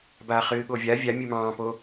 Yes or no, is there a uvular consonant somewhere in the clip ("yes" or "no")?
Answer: yes